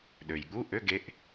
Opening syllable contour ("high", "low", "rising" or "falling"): low